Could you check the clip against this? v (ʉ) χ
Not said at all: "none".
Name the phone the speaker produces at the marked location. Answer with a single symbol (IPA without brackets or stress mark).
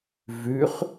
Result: ʉ